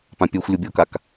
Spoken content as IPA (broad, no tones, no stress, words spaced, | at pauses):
pãpʲœxʷ lʲobʲokak